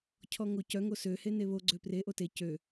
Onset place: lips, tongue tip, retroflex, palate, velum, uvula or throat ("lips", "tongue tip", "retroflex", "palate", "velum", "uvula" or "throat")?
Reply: palate